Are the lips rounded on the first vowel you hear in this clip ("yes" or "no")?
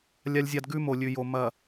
no